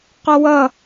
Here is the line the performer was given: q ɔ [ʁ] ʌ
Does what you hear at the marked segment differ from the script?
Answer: yes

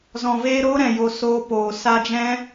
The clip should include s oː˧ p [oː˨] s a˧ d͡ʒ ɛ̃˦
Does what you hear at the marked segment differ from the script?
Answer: no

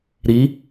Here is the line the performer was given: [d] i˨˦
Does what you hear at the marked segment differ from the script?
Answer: yes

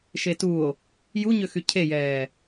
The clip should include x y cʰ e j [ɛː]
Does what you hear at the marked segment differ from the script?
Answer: no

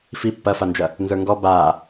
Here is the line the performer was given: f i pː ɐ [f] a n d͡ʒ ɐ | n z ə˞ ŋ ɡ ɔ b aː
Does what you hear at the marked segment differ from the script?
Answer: no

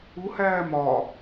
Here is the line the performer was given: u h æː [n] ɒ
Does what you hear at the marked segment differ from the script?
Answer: yes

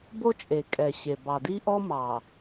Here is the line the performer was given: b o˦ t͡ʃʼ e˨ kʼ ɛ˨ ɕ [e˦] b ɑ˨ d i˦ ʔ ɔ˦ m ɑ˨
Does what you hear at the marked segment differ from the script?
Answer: yes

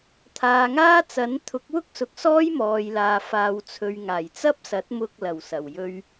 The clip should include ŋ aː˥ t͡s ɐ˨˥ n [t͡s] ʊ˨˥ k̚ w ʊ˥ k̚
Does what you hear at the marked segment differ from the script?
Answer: yes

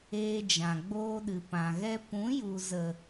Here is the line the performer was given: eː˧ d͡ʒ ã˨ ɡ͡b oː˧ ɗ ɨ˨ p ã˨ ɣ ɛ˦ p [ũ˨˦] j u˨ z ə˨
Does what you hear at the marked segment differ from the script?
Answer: no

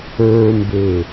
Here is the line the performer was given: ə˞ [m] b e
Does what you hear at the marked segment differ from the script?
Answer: no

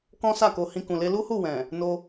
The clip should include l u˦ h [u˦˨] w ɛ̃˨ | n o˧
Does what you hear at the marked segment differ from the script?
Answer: no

